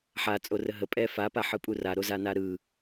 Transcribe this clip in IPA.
ħ a t͡sʼ o r ə ɦ ə pʼ ɛ f a p a ħ ɯ pʼ u r a ɾ o z a n a ɾ ɯ

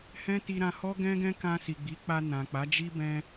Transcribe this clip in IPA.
h ɛ̃˦ t i˧ ɾ ã˧ h ɔ˦ ɡ ɛ̃˦ ɡ ɛ̃˦ k ã˧ s i˨ ɡ͡b i˨˦ k͡p a˧ n ã˨ k͡p a˨˦ d͡ʒ i˦ b ɛ̃˧

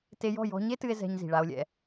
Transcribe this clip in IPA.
t e˧ j ɔ̤˦˨ j ɔ̤˧ ɲ e˦ t ɨ˧ e̯ z ɛ̤˧ ɲ z i̤˨ ɭ a˧ o̯ lʲ ɛ̰˧

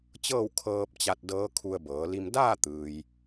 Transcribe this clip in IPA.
t͡ɕ ɤː˥˨ w kʰ ɤː˧ p̚ t͡ɕ a˧ t̚ d ɤː˧˥ kʰ u˧ ə̯ b ɤː˩˧ l i˧ m d aː˥˨ t̪ ɯː˩ j

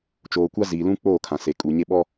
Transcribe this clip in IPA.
t͡ʃ oː˨ kʷ a˦ z iː˨ l ũ˦ k͡p oː˦˨ kʰ ã˨ s e˨ kʼ u˨ ɲ e˦ ɓ ɔ˦

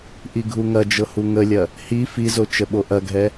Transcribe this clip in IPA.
ʔ i ɡʱ u ŋ ɐ d͡ʒ ɤ h u ŋ ə lʲ ɐ | h i f i z o t͡ʃ ə ɓ o ʔ ɐ ɡʱ ɛ

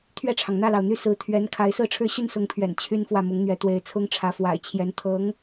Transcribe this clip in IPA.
t̪ʰ ɥ ɛ˥˩ ʈ͡ʂʰ ɑ˩ ŋ n̪ ä˥˩ l ɑ˩ ʊ̯ n̪ y˥˩ s ɹ̩˧˥ t̪ʰ ɥ ɛ˧˥ n kʰ a˧˥ ɪ̯ s ɹ̩˥˧ ʈ͡ʂʰ ɻ̩˥˧ ɕ y˥˩ n s ʊ˧˥ ŋ pʰ ɥ ɛ̰˨˩ n t͡ɕʰ y˥ n f w ä˥˩ m ʊ˧˥ ŋ n̪ ɥ ɛ˧˥ t̪ w e˧˥ ɪ̯ t͡sʰ ʊ˥ ŋ ʈ͡ʂʰ ä˧˥ f w a̰˨˩ ɪ̯ t͡ɕʰ j ɛ˧˥ n t̪ʰ ɤ˧˥ ŋ

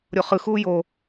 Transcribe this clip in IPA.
ɾʲ o χ ɯ x uː j o

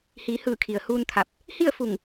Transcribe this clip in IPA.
h iː˩˧ h ɯː˧˩ kʰ i˩ ə̯ h uː˧ n t̪ʰ a˧˩ p̚ | h i˥˨ ə̯ f u˧˩ ŋ

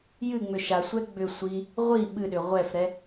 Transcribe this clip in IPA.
j ɨ ŋ͡m ʏ ʃ a sʷ ɛ ɡ͡b ʏ sʷ i | ʁʷ i ɓ ɨ ɗ ʏ ʁʷ ɛ f ɾ ɛ

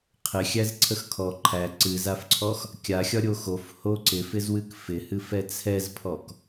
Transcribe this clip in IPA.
qʰ ɪ xʲ æ z ǀʰ ə x kʰ ɔ ǃʰ æ ǀ ɨ z a f ǀʰ ɔ x | kʲ a xʲ ɒ ɾʲ o x o f h o ǀ ɪ f ɪ z w ɨ k f ɪ h ɨ f ɛ t͡sʰ ɛ z pʰ ɔ k

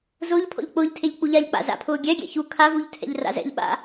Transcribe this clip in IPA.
z ʊː ʎ pʰ ɔ̰ ʎ k͡p ʊː ʎ tʰ e ʎ k͡p u ʎ a ʎ k͡p a̰ z a̰ pʰ ʊː ɡʲ ɛ ɡʲ ɛ̰ ç u kʰ a v u ʎ tʰ ɛ̰ ʎ r a̰ z ɛ̰ ʎ ɓ a̰

